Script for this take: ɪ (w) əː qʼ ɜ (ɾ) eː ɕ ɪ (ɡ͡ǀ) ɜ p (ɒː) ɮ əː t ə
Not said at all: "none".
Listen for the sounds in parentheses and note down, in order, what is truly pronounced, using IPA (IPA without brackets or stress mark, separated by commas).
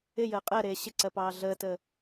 j, ɾ, ǀ, ɑː